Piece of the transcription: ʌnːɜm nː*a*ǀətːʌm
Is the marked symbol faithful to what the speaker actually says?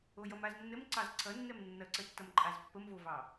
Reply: no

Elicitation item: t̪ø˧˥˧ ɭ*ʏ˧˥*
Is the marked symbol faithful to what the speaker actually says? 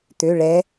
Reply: no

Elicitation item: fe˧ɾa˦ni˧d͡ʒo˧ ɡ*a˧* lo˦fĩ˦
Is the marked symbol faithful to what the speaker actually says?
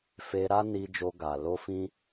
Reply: yes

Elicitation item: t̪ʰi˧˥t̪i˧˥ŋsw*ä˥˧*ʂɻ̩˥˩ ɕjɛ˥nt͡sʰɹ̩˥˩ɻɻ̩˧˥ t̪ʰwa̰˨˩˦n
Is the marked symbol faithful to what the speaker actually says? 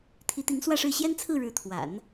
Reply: yes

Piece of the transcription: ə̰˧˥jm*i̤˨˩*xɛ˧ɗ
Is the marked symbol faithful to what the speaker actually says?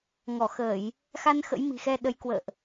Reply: yes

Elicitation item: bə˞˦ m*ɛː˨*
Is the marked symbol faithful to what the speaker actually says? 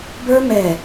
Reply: yes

